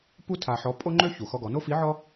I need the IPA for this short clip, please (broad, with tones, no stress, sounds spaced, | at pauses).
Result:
p u˥ tʰ a˧ ħ ɔ˧˥ pʼ o˥ ŋ͡ǃ ø˥ ç u˩ x ɔ˧ ɡ ɔ˩˧ n o˥ f i˧˥ ʕ ɔ˥